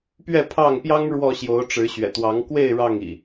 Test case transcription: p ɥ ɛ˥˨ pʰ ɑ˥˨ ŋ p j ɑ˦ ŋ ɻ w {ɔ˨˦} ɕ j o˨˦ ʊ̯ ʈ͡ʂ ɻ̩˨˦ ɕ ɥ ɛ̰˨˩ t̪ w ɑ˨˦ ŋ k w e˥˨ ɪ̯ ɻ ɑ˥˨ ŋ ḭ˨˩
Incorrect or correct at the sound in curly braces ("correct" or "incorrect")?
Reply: incorrect